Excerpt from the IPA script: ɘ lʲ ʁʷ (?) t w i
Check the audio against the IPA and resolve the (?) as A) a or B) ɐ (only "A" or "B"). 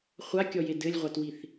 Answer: A